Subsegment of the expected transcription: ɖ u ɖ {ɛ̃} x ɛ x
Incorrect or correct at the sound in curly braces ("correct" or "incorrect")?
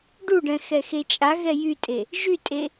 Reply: correct